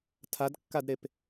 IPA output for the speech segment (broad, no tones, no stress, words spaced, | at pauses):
tʰadkːadɾep